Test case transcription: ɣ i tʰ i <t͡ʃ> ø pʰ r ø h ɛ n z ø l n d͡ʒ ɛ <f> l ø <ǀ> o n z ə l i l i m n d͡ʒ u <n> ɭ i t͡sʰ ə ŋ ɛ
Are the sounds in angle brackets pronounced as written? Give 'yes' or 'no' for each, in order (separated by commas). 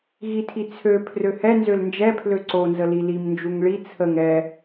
no, no, yes, no